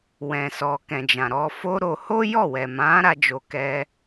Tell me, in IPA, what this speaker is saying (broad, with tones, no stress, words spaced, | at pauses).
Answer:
wɛ̃˨sɔ˨kɛ̃˨ d͡ʒã˨ɾɔ˧fo˦ɾo˧ ho˦jɔ˦˨wɛ˨mã˨˦ ɾa˦d͡ʒo˧ kɛ˧